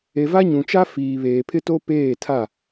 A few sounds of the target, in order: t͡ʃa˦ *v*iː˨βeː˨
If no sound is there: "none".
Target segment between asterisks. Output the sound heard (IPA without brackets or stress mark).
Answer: f